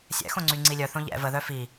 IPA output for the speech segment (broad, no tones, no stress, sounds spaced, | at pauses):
sʲ ɛ̰ x õ ŋ͡ǀ y ŋ͡ǀ i lʲ œ θ õ ʎ ɛ̰ v ə ð œ f i